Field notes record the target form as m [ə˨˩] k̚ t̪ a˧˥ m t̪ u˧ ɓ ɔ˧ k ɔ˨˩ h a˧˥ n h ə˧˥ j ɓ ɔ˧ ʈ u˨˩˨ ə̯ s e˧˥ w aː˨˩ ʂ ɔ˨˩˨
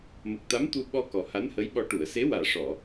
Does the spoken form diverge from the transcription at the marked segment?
no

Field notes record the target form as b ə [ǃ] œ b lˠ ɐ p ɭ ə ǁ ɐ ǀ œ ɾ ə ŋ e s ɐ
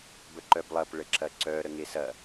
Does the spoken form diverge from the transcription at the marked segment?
no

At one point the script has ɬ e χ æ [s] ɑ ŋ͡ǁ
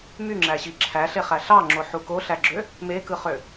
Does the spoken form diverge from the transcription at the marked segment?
yes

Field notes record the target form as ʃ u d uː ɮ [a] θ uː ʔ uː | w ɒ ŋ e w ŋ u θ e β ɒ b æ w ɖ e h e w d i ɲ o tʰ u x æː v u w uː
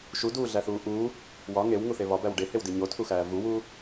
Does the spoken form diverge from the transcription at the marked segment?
yes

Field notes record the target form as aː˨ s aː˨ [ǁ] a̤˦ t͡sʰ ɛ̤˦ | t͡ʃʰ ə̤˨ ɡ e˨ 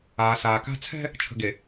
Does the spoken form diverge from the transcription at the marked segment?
yes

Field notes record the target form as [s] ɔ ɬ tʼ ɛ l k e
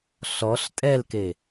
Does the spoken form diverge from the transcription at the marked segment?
yes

